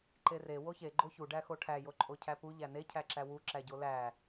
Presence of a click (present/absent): present